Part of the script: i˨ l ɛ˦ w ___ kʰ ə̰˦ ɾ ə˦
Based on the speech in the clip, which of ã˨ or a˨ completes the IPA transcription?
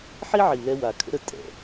a˨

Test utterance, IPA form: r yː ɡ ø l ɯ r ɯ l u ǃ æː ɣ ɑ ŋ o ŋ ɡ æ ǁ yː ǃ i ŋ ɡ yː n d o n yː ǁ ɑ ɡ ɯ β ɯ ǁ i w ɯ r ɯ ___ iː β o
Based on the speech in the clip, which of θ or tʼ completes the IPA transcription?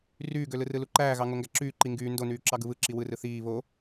θ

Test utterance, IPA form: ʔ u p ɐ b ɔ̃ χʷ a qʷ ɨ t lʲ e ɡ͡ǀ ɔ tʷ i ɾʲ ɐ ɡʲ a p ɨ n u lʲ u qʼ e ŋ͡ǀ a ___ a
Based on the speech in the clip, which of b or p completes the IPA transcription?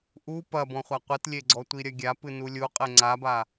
b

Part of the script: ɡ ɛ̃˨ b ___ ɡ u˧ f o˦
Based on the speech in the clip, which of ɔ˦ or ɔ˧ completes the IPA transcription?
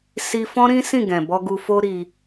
ɔ˧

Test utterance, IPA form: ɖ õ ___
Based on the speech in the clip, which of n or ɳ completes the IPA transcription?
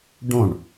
ɳ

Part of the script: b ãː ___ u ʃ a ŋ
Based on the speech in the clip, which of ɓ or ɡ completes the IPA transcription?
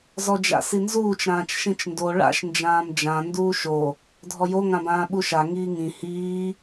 ɓ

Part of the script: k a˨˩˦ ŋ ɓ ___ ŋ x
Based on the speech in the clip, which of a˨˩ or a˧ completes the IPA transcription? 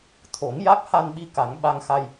a˧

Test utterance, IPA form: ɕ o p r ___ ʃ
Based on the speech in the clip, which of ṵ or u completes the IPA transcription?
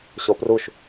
u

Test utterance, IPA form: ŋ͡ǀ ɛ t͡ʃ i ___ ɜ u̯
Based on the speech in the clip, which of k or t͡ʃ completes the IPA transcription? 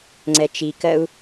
k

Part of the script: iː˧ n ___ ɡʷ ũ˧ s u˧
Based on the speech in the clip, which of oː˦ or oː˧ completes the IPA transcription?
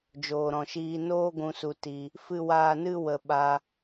oː˦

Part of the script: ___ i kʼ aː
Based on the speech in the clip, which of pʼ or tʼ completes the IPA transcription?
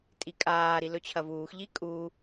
tʼ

